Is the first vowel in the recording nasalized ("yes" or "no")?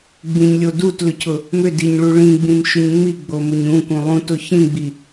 yes